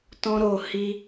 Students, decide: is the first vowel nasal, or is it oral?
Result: nasal